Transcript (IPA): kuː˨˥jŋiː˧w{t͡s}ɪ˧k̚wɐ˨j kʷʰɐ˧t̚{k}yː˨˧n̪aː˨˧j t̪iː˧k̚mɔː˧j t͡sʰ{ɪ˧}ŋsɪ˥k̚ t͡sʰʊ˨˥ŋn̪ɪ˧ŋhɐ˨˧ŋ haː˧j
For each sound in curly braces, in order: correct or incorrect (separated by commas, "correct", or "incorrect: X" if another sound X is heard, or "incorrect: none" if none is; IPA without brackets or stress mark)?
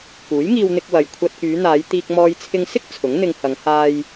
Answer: incorrect: n̪, correct, correct